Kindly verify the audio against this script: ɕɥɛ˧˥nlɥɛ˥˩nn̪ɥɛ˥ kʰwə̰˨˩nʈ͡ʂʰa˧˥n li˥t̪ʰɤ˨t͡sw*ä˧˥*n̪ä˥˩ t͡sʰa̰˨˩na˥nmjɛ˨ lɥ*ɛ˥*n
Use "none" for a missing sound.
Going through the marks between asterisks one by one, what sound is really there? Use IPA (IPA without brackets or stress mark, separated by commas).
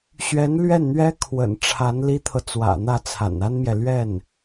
ä̰˨˩, ɛ˥˩